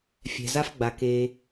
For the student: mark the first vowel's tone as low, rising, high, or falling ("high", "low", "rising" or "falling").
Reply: low